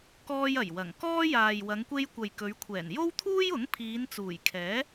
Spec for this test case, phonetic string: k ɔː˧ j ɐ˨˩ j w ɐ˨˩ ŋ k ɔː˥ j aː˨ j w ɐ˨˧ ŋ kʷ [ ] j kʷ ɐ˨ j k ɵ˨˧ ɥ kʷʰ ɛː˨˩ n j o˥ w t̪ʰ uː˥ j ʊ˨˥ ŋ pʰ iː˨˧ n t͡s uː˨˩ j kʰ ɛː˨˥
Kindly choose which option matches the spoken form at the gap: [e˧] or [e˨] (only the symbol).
e˧